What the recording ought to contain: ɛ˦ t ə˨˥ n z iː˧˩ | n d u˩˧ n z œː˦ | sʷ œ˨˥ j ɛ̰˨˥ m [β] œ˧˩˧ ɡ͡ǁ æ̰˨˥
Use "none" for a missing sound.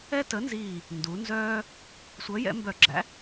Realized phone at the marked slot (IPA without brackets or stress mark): b